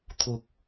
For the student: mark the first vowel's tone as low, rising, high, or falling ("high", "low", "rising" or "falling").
low